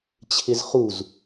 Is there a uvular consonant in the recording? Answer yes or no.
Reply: yes